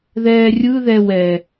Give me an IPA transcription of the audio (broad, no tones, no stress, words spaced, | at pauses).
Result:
ðɛːrʲɯðɛ wɛ